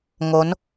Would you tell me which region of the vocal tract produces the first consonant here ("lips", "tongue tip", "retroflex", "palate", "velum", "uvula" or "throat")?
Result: velum